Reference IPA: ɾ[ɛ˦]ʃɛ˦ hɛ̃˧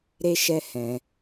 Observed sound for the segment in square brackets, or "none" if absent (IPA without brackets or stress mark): e˦